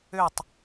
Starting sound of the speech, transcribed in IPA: ø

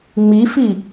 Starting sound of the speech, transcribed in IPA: ŋ͡m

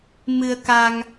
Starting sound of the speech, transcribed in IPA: m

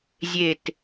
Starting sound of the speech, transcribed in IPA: zʲ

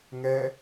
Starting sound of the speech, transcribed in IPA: ŋ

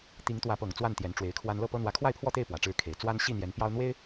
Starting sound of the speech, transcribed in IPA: t̪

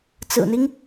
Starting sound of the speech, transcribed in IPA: t͡s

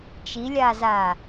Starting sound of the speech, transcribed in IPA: t͡ʃ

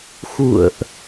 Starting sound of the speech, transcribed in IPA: x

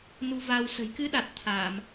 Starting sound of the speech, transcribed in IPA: n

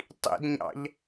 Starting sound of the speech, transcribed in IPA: tˤ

